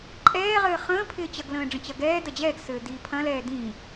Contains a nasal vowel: yes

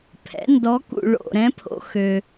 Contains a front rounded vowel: yes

